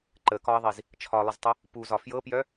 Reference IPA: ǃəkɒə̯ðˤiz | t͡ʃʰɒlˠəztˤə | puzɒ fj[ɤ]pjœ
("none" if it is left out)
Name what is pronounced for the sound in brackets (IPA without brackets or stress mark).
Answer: ɤ